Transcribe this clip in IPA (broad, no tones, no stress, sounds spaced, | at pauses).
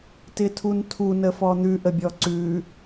t ɪ tʰ u n tʰ u n ə f ɔ n̪ ʉ ʔ ə bʲ ɔ ǀ ʉ